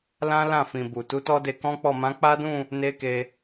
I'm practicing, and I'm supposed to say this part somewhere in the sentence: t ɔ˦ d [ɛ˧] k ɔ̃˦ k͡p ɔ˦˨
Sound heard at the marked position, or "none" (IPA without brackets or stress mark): e˧